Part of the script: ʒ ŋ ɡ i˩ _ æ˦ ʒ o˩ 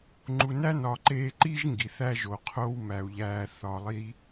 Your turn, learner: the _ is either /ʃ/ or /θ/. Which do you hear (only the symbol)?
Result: θ